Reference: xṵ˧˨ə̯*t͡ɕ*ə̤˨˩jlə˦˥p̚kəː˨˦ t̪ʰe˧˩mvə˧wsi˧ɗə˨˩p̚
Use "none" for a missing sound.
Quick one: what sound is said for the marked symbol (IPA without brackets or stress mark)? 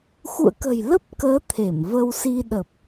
k